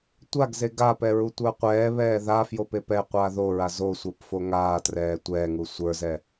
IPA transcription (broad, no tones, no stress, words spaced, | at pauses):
tʷaɡze ɡapɛ ɹutʷə˞qʷɛː βɛːða fjopepɛ qʷaːðoɹa zosʷə˞p foŋaːtrɛː tʷɛːŋu sʷə˞zɛ